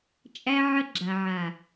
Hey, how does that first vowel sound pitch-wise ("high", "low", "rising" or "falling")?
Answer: high